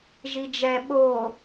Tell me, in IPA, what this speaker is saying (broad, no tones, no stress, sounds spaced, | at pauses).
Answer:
ʒ i d͡ʒ ɛ ɓ o